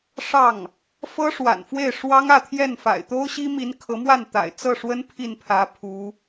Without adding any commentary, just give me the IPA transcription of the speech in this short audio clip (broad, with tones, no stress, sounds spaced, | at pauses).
ʂ ɑ˥˩ ŋ | f ɤ˥ ʂ w a̰˨˩ n f w e˥˩ ɪ̯ ʂ w ɑ˥ ŋ ä˥˧ t̪ʰ j ɛ˥˩ n f a̰˨˩ ɪ̯ t̪ o˥ ʊ̯ ɕ i˥ m i˧˥ n kʰ ɤ˧˥ m w a˥˩ n t̪ a̰˨˩ ɪ̯ t͡s ɤ˥˩ ʂ w ə˥ n pʰ i˥˩ n pʰ ä˧˥ pʰ u˧˥